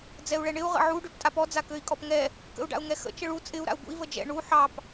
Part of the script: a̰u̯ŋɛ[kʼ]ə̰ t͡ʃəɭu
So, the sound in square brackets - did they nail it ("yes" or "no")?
no